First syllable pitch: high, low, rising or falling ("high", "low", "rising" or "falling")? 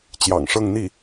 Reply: low